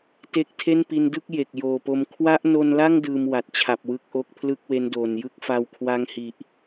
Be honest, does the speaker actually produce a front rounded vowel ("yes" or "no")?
no